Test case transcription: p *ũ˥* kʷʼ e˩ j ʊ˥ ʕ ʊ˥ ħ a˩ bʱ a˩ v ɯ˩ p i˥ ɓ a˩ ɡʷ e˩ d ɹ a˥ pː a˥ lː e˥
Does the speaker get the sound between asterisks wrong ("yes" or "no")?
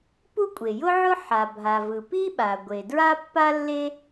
yes